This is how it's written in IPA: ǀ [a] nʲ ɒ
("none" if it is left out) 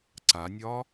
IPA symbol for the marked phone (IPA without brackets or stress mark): a